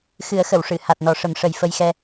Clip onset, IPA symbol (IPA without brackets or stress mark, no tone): x